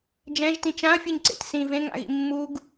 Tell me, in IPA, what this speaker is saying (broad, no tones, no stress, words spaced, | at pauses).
d͡ʒɛ̃ʒtĩ t͡ʃãɐ̯fʲɯɲǀḛt sĩ vẽŋa̰ɣḭ mːuɡ